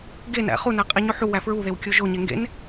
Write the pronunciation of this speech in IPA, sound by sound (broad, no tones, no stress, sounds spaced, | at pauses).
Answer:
ɡ e n æ̰ χ u n æ qʼ i ɲ o ħ u w æ f ɹ u ð e w kʲ o ʒ o ɲ e ŋ ɡ ḛ n